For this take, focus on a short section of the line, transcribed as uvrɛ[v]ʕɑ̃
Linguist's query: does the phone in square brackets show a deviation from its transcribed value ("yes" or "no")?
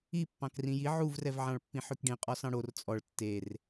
no